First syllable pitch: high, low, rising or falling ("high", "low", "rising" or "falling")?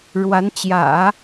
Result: rising